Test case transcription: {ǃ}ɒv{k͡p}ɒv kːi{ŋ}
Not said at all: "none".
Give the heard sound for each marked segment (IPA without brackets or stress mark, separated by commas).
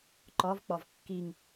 ǃ, k͡p, ŋ